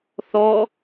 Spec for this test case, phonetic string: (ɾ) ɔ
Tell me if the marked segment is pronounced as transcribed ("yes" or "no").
no